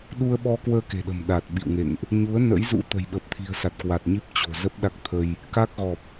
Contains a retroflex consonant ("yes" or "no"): no